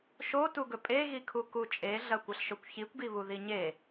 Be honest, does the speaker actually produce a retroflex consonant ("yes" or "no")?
no